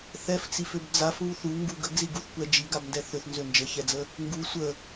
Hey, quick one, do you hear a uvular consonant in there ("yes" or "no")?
no